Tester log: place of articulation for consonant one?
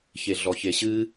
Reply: palatal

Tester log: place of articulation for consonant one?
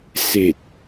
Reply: alveolar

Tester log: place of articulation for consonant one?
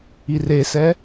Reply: alveolar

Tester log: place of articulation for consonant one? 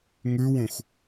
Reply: velar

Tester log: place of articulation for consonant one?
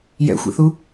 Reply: palatal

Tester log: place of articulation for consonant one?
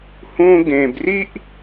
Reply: glottal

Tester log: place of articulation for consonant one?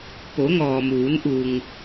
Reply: labial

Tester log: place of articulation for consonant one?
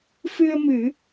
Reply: labial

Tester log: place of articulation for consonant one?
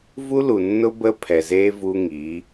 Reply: labial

